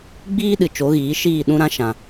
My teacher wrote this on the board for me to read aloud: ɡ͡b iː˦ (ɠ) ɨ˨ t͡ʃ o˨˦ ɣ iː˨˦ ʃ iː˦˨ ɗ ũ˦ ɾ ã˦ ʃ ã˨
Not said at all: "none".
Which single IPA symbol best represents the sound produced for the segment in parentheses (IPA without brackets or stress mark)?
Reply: ɗ